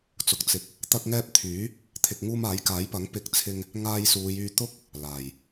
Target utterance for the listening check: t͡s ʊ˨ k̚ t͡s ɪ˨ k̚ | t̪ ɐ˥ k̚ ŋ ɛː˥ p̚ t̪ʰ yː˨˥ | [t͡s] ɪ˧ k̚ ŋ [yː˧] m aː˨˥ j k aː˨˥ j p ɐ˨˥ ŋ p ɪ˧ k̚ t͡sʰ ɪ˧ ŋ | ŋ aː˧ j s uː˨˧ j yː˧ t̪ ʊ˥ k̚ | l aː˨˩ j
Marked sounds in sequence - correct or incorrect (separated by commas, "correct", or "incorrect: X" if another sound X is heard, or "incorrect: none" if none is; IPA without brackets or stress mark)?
incorrect: t̪ʰ, incorrect: uː˧